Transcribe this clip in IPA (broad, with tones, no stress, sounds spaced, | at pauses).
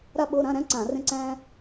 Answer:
ɾ a˥ ɓ o˧˥˧ ɾ ã˧˥˧ ɾ æ̃˥ ǀ ã˧˩˧ r ẽ˥ ǀ æ̃˥